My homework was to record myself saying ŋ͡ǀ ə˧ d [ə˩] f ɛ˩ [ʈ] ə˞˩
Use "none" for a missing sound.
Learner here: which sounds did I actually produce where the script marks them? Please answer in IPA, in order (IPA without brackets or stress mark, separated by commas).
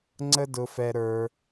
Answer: ʊ˩, ɾ